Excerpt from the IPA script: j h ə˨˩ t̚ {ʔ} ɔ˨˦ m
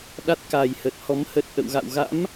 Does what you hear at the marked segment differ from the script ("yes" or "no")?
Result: yes